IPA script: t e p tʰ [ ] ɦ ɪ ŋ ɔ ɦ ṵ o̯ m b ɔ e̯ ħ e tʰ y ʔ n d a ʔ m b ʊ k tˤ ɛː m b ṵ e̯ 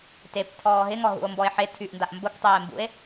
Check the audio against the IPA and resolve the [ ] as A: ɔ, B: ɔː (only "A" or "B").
B